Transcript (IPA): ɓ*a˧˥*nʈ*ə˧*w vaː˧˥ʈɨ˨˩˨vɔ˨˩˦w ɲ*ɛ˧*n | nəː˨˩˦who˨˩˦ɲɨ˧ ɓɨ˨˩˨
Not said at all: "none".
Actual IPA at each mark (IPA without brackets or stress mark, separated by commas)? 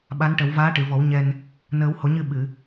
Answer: a˧˥, ə˨˩˦, ɛ˧